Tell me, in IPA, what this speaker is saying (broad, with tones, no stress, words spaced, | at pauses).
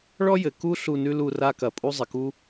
ɭɔ˥jɘ˩ ku˥ ɬu˦˨nʉ˥lu˦˨ ra˥kɐ˩ pʼu˥zˤɪ˩ku˥